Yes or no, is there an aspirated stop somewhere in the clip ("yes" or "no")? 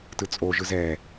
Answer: no